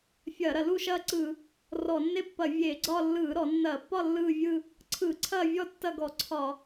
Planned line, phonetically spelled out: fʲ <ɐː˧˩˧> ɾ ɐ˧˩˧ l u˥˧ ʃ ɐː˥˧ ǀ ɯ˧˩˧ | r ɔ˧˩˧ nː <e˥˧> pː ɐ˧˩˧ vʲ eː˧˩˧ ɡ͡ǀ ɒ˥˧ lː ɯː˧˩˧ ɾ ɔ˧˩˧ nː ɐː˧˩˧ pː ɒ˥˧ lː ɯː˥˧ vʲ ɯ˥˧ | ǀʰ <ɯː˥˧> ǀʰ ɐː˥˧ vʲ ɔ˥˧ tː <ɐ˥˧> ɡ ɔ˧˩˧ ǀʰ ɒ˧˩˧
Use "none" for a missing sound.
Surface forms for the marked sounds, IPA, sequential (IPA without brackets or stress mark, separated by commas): ɐː˧˩˧, e˥˧, ɯː˧˩˧, ɐ˥˧